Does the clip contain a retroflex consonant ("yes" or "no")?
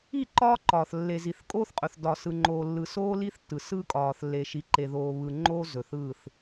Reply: no